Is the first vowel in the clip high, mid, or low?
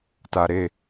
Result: low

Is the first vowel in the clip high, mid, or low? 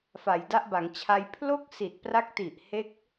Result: low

